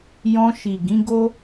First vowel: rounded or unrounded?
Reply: rounded